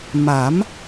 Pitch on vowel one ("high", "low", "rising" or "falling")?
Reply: rising